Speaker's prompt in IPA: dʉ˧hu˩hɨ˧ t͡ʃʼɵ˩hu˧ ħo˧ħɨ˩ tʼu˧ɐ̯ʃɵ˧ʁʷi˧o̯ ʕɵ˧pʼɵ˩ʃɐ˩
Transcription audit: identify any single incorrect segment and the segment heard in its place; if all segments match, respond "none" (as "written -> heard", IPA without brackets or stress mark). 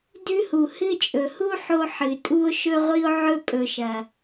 ɐ̯ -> o̯